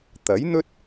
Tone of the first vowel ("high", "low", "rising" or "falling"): rising